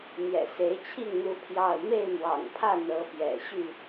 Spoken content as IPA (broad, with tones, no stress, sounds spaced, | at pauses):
n̪ j ɛ̰˨˩ s e˨˦ ɪ̯ t͡ɕʰ i˥˨ ŋ n̪ u˦ pʰ j ɑ˥˨ ʊ̯ m e˥˨ ɪ̯ m w ɑ̰˨˩ ŋ pʰ ä˥˨ n̪ ɤ˨˦ p j ɛ̰˨˩ ɕ y˥˨